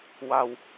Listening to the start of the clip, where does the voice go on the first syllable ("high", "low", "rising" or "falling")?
low